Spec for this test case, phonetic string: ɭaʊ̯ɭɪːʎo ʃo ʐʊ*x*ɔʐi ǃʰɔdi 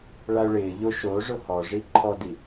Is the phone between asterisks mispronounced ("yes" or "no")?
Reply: yes